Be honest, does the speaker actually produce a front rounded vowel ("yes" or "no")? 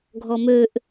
yes